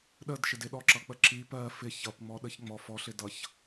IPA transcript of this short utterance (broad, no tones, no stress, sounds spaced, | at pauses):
ɗ ə d ʃ ɪ d ɪ ɗ ɔ ǁ ʌ k͡p ə ǁ i p ɜ f ɪ ç ʌ p ŋ͡m ɔ ɗ ə ç ŋ͡m ɔ f ɔ ɬ ɪ d ʌ ç